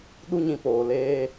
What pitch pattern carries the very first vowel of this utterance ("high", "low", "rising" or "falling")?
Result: high